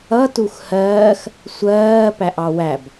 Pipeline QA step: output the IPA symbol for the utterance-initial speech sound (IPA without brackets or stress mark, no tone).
ʌ